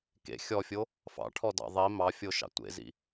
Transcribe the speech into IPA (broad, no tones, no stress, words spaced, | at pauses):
kḛ xʲɔfʲo | fɑ̰ʈʰɔdɑ̰ ðˤi mɑfʲoʃɑ̰ tʷḛzḭ